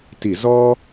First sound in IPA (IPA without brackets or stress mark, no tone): t